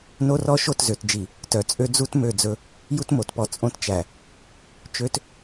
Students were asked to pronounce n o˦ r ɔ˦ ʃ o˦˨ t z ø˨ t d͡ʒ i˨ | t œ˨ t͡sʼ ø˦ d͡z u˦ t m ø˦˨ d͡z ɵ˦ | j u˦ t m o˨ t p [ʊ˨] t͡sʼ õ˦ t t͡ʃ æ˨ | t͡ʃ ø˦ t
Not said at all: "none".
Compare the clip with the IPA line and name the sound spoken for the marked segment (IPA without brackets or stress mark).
ɔ˨